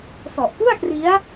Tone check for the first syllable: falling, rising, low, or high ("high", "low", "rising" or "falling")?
low